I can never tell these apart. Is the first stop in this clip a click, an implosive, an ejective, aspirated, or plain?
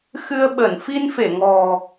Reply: implosive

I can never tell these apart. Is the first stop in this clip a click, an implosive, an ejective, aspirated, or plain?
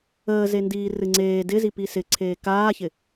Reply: plain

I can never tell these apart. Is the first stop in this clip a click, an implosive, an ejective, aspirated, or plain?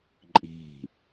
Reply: click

